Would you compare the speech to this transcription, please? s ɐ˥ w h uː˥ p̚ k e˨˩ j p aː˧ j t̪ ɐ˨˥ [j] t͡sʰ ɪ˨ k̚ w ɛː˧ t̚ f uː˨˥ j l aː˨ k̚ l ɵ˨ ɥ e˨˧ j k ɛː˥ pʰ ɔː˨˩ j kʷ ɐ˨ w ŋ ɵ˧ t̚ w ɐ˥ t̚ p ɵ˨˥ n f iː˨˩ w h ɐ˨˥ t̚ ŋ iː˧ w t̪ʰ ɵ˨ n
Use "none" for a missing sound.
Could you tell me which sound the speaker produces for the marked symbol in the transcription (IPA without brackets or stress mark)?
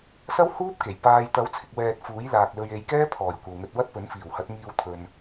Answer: w